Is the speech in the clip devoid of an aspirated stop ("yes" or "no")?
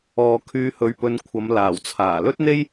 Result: no